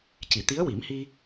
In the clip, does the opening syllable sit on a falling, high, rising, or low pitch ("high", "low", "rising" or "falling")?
low